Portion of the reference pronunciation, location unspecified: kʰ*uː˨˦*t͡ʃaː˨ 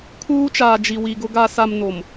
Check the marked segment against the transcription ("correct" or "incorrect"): incorrect